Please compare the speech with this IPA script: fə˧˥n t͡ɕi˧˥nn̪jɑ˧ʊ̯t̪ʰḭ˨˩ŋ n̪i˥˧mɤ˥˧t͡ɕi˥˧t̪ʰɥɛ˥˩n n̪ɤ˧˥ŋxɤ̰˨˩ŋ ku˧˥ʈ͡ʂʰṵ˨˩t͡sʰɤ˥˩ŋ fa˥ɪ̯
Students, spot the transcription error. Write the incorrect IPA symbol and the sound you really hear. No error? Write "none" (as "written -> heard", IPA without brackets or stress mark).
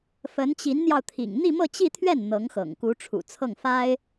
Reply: none